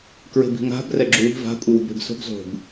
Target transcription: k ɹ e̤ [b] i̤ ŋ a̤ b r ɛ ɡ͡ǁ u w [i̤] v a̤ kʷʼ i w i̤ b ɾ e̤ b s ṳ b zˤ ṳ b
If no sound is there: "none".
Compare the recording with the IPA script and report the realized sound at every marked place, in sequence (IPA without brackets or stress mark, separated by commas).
b, i̤